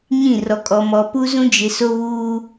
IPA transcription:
ɲĩ˦˨rɔ˨kʼɔ˨ mɔ˨pu˦zũ˦ d͡ʒɪ˨so˦βuː˦

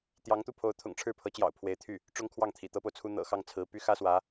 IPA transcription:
t̪jɑ˧˥ŋt̪u˥˩pʰo˧˥ʊ̯ t̪ʰʊ̰˨˩ŋʈ͡ʂʰɻ̩˥˩pʰɤ˧˥t͡ɕjɑ̰˨˩ʊ̯ pʰwe˧˥ɪ̯t̪ʰy˥˩ | ʈ͡ʂʊ˥ŋkʰwɑ˥˩ŋt̪ʰḭ˨˩ t̪ɤ˥po˨ʊ̯t͡sʰu˥ n̪ɤ̰˨˩xɑ˥˩ŋt͡sʰɹ̩˧˥py˥ xä˥swä˧˥

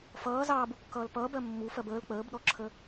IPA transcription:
fʌː zɑːbukːʌːl pʌːbɜ mːu fɜbəːl k͡pəːbɗɔǁʰə

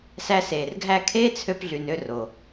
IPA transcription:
sæ˧seː˨rɡʱæ˦˨ kʰeː˦t͡sʰø˧pɮy˨nø˦˨r o˨

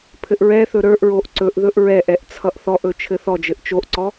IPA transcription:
pʰɘʔɹɛθɵ ɾə˞ʔɹoʔ ǀɵʔ ðɵʔɹɛʔɛʔ t͡sʰʌʔθɔʔɵ t͡ʃʰɘθɔd͡ʒɘʔ t͡ʃoʔǀɔ

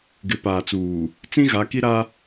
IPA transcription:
ɡɪ˨˦paː˨t͡suː˨ | t͡sĩ˦ ɣa˨˦ki˦ɾa˦

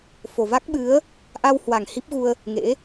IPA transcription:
fo˨˩va˦˥k̚ɓɨ˨˦ə̯ | ʔa˧whwa˨˩ŋ hi˦˥p̚ɣu˧ə̯ | ŋḛ˧˥

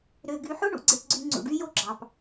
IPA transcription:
ɾø˨ɡy˨ħo˦ɳṵ˨ ɡ͡ǀe˨pɡ͡ǀy˨ ŋ͡ǀṵ˨ɖy˦jo˦ɡ͡ǁɑ˨p

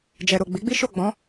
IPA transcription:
d͡ʒɛ˨ɾo˨ɡ͡bi˨˦ɡ͡bi˦ ʃo˦˨ɡ͡bɔ̃˨˦

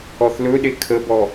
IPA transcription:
ɔθlɵɗe kʰəbɔ

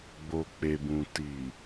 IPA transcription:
ɡ͡bo˨k͡pe˨bũ˨ tiː˨

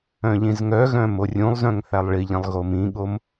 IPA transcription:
œ̃ʎĩzŋœɣœ̃ morʲũlˠzœ̃ŋ θælˠɭiʎĩlˠ ɣomĩɠom

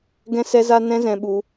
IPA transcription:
ɡɛ̃˦sɛ˦za˦ nɛ̃˧ zɛ̃˧ɓu˧

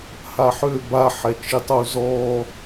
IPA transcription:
haħø baħɛt͡ʃi tˤuzɔ

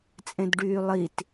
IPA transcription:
t͡sʼẽdɖyːlˠit

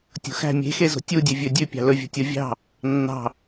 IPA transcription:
tʲo̤xæ̤ mʲe̤xezo̤ tʲudʲø vʲɵdʲʉ pʲɑ̤lɵvʲo̤ tʲovʲɑ̤ | nːɑ̤

